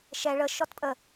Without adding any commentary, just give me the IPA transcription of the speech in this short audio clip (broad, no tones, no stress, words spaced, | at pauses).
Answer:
ʃɛ ɭə ʃɔtpʼə